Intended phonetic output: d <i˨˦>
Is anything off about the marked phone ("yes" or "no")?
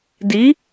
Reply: no